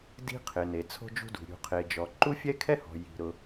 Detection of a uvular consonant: present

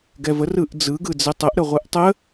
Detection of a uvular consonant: present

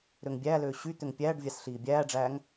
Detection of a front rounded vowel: present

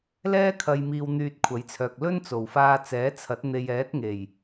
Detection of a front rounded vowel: present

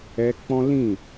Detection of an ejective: absent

